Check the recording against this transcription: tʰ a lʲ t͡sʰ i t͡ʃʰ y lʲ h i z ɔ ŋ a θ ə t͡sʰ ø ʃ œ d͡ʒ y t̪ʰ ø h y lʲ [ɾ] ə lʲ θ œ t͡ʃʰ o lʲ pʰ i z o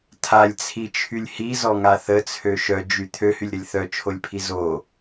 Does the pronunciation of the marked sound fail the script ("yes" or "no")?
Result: no